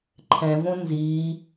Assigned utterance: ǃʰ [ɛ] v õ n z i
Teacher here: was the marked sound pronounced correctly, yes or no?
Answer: no